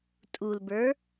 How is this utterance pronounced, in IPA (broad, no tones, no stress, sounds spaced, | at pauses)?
tʼ u l b ə˞